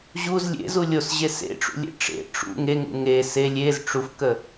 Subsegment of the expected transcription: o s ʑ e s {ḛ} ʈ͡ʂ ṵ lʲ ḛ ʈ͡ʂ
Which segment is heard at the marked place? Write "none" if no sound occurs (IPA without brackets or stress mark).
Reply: ḛ